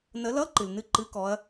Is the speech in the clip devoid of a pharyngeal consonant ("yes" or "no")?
yes